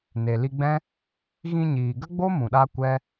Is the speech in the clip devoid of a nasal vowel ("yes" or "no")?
no